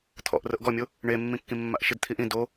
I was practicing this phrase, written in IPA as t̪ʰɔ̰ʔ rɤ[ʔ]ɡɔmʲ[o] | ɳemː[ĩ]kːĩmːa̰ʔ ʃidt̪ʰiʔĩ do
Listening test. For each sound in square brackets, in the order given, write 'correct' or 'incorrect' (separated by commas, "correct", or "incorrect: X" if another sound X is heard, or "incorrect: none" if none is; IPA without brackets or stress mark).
correct, correct, correct